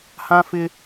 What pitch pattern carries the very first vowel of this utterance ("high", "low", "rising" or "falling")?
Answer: high